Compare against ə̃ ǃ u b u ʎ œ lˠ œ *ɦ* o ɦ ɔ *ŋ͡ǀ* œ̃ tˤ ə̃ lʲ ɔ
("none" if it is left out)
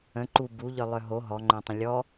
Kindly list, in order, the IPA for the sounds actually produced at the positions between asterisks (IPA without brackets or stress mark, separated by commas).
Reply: ɦ, ŋ͡ǃ